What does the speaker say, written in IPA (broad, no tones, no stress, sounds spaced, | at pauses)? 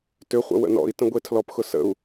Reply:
t ʏ χʷ ə̰ w ə̰ n ɔ̰ i̯ t ə̃ ɡʷ e tʰ l ɔ p x ʊ s ə̰ u̯